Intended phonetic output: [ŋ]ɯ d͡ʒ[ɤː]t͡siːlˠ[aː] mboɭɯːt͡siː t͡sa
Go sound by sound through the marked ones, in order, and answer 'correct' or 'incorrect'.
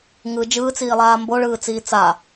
correct, incorrect, correct

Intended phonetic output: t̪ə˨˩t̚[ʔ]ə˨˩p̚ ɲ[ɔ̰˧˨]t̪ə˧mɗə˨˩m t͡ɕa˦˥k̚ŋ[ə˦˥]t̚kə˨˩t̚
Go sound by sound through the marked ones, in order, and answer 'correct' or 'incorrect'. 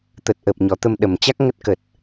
correct, incorrect, correct

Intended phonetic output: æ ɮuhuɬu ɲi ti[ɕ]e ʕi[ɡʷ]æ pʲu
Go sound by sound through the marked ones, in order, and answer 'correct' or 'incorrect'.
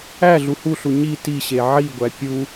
correct, correct

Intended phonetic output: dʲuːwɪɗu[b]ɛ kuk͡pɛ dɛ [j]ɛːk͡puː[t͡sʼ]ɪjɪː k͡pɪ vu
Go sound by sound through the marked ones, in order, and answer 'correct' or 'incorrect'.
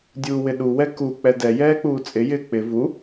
incorrect, correct, correct

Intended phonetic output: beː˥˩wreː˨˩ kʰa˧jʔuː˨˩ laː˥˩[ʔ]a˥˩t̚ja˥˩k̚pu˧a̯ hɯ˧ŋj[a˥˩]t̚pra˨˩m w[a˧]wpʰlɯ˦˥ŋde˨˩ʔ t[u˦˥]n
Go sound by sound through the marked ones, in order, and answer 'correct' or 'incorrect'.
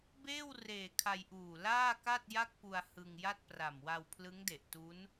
incorrect, correct, correct, correct

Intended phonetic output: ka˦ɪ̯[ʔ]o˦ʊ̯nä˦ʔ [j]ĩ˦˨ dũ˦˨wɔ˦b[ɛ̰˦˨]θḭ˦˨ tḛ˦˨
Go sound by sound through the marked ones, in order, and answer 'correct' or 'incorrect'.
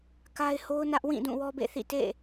incorrect, incorrect, incorrect

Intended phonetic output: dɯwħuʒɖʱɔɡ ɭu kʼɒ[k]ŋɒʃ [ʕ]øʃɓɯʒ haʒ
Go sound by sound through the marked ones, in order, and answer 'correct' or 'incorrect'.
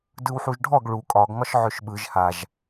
incorrect, correct

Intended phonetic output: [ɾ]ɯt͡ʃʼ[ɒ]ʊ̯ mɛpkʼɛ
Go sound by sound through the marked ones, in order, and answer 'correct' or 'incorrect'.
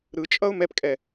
correct, incorrect

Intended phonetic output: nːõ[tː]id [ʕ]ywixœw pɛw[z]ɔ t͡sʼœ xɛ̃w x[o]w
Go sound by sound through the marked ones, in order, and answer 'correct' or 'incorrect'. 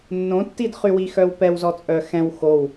correct, incorrect, correct, correct

